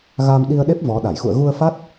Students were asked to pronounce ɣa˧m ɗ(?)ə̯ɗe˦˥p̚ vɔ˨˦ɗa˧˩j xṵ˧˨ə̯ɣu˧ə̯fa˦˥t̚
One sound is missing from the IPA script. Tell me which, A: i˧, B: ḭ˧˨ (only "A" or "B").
A